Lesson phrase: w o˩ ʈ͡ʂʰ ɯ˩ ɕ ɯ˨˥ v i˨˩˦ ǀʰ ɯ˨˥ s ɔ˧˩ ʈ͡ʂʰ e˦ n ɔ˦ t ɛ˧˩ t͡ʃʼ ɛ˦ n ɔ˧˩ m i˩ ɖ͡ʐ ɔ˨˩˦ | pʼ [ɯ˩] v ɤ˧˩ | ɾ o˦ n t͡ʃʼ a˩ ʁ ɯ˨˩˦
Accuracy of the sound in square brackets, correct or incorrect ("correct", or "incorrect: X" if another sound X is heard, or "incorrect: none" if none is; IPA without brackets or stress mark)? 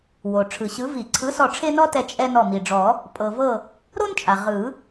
incorrect: ɤ˩